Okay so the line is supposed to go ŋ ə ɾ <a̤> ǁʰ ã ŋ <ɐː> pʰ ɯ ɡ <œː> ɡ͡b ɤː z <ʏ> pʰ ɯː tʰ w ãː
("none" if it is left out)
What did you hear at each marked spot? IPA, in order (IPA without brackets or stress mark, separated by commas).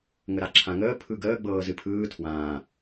a, əː, əː, ɨ